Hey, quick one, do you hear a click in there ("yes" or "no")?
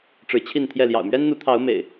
no